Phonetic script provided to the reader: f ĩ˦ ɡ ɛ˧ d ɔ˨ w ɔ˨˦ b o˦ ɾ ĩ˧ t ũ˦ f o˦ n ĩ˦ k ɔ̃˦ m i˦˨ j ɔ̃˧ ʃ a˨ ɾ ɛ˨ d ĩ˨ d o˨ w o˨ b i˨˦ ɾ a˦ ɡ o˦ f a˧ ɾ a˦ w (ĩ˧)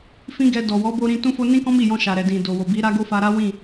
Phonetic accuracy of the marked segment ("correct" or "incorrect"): incorrect